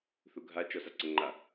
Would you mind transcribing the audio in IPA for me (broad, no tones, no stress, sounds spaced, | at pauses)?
θ u ɡʱ a t͡ʃ ɔ s a ǀ ə ŋ͡ǃ a